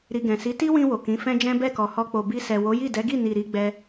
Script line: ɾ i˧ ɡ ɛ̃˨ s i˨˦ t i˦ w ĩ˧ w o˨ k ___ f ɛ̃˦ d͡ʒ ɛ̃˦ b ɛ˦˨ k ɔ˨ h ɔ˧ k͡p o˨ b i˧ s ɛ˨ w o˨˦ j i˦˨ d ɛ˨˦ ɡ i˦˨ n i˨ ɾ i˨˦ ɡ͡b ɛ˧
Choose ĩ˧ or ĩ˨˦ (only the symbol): ĩ˨˦